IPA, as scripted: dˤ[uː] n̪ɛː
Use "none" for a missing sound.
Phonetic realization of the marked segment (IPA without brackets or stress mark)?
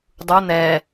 u